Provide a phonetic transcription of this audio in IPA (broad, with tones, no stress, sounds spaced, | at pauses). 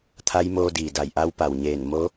t̪ʰ a˧˥ j m oː˧ d iː˩ d a˧˩ j ʔ a˧˥ w p a˩ w ɲ eː˧˩ n m o˧˥